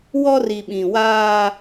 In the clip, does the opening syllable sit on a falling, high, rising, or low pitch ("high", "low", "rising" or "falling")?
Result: high